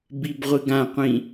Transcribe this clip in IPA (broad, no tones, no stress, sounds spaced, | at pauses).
b i b ʁʷ ɨ ɡ ã qʷ ĩ